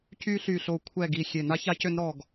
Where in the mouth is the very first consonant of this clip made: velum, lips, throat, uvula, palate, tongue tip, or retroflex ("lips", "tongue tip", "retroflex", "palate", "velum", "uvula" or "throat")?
palate